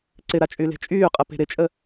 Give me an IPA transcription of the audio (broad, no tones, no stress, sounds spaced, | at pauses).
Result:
ǀ ɪ ɾ a t͡ʃʼ y l e̤ t͡ʃʼ yː qʼ ə p e̤ ɾ ɪ t͡ʃʼ ə